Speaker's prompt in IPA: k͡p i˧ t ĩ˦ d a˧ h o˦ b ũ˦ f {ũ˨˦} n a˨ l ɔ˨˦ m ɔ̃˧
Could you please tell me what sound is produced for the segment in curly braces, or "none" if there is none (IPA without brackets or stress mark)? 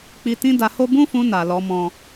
ũ˧